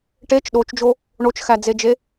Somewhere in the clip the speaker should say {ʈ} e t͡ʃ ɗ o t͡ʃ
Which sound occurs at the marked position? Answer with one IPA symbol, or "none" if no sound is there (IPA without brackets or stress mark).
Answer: ʈ